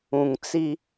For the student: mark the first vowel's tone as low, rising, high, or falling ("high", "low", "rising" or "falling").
low